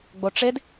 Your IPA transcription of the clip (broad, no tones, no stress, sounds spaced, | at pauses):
ɡ͡b o ʈ͡ʂ e d